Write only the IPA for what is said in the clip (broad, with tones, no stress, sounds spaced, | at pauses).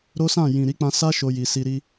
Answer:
ɾ o˦ s ã˦˨ j ĩ˨ ɾ i˨˦ k͡p ã˧ s a˦ ʃ o˧ j i˨ s i˧ ɾ i˦